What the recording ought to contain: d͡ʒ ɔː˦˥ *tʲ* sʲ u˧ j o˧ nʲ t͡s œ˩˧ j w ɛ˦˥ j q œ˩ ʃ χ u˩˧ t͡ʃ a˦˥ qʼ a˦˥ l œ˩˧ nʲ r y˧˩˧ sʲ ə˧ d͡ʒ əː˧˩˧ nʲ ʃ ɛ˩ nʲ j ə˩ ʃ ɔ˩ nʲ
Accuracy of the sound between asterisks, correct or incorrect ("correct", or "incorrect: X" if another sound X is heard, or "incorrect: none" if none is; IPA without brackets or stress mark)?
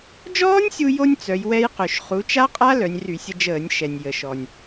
incorrect: nʲ